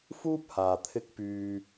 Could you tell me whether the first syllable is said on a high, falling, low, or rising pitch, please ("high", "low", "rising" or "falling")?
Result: high